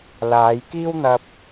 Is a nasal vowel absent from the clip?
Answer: yes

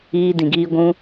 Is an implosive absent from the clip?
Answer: yes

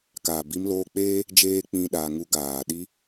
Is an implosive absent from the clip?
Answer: no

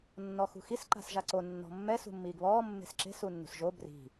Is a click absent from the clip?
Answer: no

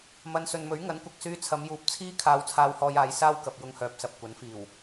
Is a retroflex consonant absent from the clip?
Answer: yes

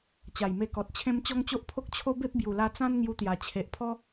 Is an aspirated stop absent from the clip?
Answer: no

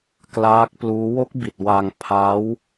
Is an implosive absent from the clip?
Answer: yes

